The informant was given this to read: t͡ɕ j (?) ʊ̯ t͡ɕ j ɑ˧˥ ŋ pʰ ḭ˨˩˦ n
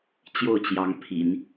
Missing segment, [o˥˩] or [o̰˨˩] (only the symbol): o˥˩